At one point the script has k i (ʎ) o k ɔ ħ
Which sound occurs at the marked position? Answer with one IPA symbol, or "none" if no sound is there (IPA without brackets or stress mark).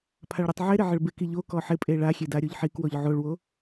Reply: ʎ